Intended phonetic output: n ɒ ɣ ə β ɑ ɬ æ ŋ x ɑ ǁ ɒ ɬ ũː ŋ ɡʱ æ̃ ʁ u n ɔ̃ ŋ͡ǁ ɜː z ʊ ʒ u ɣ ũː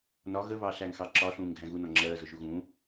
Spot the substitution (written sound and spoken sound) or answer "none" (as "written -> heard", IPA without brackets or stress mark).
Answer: ʁ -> ɣ